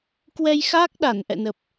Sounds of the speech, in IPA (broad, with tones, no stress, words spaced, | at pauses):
kwɛ˧jxa˦˥k̚ɗa˧˩n ʔɛ̰˧˨nə˨˩p̚